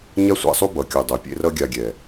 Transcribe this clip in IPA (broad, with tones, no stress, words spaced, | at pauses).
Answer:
ɲa˦sʷa̰˧sˤu˦ bʌ˨kʲu˨dˤo˨pʲḛ˦ rʌ˧ɡʲa˨ ɡʲɛ˨